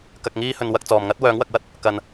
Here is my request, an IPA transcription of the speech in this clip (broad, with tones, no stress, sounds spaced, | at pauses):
k ɐ˨ k̚ ŋ iː˧ h ɵ˨ n w ɐ˧ k̚ t͡s ɔː˨ m ŋ ɐ˥ t̚ w œː˨˧ ŋ w ɐ˨ k̚ w ɐ˥ t̚ | k ɐ˨ n